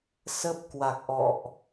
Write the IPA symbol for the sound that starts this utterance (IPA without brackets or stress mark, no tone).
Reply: s